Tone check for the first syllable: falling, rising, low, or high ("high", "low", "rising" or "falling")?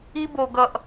high